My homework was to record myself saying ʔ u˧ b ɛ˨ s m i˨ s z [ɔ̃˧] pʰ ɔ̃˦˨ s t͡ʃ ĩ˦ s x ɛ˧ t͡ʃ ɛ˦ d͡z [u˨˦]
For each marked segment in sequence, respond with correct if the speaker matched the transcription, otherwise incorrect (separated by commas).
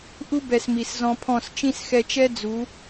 correct, correct